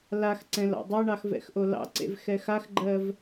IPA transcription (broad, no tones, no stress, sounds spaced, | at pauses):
l a x ǀ ɛ̃ l ɑ̰ dˤ ɛ ɳ ɑ x v ɛ̰ x ʔ o l ɑ̰ ǀ ḛ v x ɛ x a x ɡ͡ǃ ɜ v